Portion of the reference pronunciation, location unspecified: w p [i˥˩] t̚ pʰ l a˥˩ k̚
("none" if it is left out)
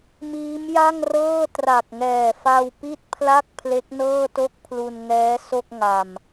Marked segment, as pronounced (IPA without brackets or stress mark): i˥˩